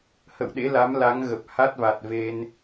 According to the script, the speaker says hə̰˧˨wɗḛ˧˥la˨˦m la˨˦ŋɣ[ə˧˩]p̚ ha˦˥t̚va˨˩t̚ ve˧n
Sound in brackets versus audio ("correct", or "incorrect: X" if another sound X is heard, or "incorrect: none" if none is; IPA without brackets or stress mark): incorrect: ə˨˩